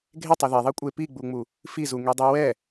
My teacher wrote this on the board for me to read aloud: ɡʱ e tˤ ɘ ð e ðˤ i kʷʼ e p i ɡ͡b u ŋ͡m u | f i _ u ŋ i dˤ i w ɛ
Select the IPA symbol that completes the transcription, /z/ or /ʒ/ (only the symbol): z